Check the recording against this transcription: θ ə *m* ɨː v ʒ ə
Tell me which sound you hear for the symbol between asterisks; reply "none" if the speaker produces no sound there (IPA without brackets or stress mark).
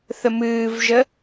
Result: m